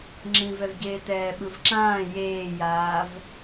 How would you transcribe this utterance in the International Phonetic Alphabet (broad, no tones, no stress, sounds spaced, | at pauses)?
ŋ͡ǁ ĩ v ɛ v ɟ eː t ɛː ɓ ɯ v ǁ ãː j eː j aː v